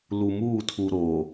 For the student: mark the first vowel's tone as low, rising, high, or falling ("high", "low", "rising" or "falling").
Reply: low